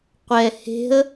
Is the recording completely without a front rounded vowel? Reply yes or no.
yes